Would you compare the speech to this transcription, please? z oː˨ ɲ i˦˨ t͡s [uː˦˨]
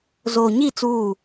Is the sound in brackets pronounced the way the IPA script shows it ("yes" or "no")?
yes